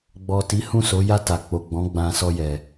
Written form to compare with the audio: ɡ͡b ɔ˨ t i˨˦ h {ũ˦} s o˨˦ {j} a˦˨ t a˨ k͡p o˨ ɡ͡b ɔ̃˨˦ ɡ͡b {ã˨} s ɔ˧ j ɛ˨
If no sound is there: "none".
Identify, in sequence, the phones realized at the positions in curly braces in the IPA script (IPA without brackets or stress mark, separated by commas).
ũ˦˨, j, ã˧